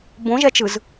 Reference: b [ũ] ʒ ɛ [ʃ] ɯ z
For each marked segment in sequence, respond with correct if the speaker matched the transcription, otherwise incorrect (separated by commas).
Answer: incorrect, incorrect